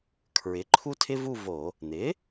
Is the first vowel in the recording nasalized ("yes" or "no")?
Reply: no